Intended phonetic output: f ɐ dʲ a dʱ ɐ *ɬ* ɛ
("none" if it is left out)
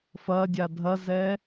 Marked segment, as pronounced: z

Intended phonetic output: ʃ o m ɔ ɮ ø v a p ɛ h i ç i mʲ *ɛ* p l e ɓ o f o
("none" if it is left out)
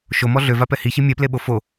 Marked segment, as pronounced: ɛ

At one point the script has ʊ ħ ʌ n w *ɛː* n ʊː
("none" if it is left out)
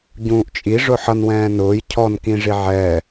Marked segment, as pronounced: ɛ̃ː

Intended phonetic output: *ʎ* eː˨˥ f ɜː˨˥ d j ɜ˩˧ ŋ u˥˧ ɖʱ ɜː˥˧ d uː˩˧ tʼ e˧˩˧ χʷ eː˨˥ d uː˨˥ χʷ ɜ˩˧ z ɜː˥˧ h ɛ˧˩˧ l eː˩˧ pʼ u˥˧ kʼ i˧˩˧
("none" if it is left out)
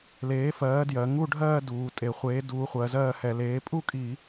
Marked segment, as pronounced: l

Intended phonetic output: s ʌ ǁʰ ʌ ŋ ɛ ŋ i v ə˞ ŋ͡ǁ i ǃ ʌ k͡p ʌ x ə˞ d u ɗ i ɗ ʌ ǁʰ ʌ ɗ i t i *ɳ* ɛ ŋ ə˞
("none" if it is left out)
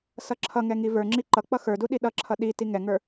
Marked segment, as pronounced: ŋ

